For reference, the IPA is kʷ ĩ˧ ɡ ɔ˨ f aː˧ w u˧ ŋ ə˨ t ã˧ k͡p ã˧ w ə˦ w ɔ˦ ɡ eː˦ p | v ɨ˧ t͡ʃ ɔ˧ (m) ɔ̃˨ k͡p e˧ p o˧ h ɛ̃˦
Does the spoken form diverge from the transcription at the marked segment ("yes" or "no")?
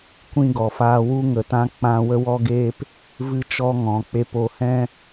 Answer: yes